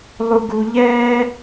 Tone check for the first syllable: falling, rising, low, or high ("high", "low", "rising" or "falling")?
low